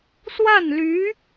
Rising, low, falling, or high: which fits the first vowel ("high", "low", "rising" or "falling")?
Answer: falling